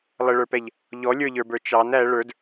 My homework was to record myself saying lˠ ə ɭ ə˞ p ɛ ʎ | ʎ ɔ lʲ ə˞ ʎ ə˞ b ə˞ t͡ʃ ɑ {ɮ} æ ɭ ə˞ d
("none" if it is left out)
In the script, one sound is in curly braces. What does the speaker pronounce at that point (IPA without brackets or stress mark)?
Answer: n